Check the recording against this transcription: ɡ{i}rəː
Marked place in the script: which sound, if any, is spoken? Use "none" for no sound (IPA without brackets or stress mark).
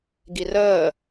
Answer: i